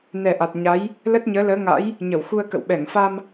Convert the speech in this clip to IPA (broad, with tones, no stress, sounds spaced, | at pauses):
n ɛ˨˩ ʔ a˨˩ t̚ ɲ a˨˦ j | l ə˦˥ t̚ ɲ əː˨˦ l əː˨˦ ŋ a̰˧˥ j | ɲ ə˧˩ w x u˧ ə̯ k ə̰˧˨ w ɓ ɛ˧˩ ŋ f a˧ m